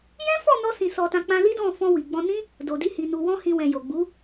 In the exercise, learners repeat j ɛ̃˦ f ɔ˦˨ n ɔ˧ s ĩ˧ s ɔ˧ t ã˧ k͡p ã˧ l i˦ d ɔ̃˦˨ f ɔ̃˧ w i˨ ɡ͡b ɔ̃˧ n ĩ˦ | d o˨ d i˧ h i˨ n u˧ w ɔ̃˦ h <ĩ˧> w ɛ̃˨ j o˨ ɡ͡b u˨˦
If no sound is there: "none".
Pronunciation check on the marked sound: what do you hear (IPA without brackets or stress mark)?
ĩ˧